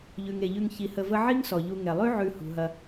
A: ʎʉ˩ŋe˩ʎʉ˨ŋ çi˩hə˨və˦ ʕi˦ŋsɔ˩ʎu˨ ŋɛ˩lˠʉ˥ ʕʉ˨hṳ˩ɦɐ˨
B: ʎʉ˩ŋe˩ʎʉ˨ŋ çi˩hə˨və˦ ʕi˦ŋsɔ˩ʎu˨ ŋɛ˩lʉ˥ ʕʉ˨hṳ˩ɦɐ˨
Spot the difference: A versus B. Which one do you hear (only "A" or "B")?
A